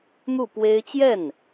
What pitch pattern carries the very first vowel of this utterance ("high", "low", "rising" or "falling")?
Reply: falling